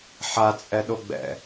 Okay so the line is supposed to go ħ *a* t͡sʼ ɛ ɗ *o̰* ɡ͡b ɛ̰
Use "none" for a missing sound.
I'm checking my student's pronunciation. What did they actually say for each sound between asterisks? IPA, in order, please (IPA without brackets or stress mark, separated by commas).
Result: a, o